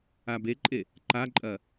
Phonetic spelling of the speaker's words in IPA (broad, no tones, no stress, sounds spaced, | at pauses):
a b e ǃʼ e | ǃ a ǃʼ ɐ